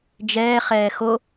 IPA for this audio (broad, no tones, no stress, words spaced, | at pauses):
d͡ʒɛːχɛː xo